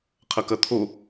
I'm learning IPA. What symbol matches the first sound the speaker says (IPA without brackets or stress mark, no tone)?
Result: qʰ